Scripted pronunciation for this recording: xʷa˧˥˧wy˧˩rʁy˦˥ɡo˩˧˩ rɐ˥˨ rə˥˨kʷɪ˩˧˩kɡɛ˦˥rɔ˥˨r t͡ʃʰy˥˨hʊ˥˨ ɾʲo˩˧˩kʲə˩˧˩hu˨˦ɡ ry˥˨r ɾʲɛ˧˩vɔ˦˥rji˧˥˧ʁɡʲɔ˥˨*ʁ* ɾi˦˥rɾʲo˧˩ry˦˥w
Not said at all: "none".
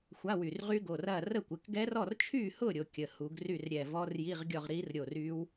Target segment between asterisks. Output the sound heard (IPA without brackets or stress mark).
ʁ